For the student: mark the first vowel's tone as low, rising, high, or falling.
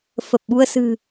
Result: low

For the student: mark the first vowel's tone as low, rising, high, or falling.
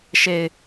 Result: low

